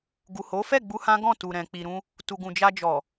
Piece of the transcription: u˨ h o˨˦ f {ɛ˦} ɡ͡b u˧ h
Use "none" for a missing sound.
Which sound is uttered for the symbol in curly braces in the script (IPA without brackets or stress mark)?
ɛ˦˨